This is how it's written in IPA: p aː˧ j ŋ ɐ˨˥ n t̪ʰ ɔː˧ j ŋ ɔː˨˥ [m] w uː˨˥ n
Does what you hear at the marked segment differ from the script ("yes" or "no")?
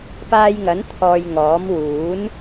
no